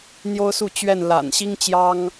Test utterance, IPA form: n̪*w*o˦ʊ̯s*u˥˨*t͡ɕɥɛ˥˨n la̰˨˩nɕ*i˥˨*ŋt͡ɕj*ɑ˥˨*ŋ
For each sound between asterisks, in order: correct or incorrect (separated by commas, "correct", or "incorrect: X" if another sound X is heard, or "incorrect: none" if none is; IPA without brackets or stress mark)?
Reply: incorrect: j, correct, incorrect: i˦, incorrect: ɑ˦